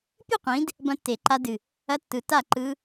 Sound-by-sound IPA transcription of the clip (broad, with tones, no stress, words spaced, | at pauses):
pʲɨ˥˨qʷĩ˨˦d | bɐ̃˦˥tːe˨˩˦ǃa˦˥ dɨ˧˩ | ɐ˦˥tːɯ˨˦ ta˥˨ǃɯ˦˥